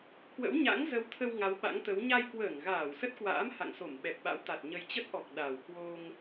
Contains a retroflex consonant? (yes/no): no